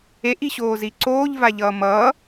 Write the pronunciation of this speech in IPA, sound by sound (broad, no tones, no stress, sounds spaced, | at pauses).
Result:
e ʔ i ɕ oː z i ǀ oː ʎ v a ʎ ʌː m ʌ